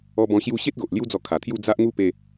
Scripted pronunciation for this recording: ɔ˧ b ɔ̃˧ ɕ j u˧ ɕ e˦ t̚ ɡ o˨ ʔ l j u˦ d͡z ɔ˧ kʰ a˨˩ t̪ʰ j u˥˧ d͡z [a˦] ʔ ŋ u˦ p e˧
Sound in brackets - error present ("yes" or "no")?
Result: no